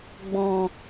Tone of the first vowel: low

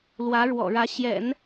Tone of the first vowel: rising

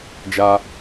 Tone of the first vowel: high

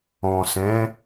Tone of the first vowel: low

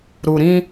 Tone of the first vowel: low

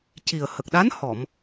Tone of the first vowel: low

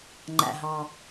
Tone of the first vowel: low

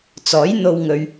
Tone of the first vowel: rising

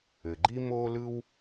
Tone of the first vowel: low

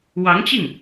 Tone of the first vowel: rising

